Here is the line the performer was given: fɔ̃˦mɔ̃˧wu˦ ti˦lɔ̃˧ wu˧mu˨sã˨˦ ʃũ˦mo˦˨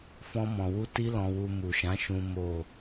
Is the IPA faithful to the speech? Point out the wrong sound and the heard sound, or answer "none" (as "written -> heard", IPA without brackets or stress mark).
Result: s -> ʃ